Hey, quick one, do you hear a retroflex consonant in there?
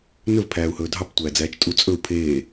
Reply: no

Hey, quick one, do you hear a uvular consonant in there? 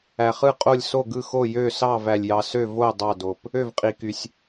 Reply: yes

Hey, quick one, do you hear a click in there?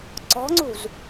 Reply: yes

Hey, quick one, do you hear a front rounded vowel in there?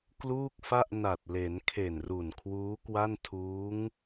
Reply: no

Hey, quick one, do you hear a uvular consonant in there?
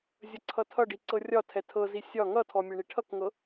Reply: no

